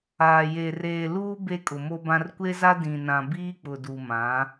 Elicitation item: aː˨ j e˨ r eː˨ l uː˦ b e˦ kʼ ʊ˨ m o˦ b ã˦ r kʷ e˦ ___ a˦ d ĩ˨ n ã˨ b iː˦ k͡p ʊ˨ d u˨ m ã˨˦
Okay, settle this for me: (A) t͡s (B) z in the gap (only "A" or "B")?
B